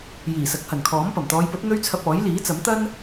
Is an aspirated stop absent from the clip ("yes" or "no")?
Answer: no